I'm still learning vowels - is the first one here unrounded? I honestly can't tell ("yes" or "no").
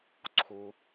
no